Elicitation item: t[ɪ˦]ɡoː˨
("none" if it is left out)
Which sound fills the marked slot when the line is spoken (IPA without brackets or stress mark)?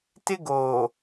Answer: ɪ˦